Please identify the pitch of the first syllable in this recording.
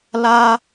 high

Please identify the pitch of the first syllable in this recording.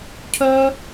high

